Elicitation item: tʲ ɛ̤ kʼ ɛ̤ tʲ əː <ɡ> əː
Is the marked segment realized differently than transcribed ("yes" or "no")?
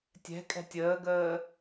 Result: no